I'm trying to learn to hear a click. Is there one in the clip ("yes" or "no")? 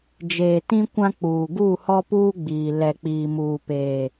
no